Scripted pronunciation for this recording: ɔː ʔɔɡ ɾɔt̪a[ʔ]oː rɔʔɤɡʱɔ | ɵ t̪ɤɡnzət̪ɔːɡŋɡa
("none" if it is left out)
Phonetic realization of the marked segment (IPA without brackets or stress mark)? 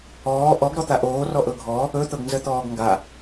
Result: ʔ